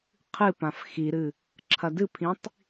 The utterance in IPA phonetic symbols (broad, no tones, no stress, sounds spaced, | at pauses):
qʰ ɨ p ã f x i ɾ ɨ | ǁʰ ɐ d ɨ pʰ ĩ tˤ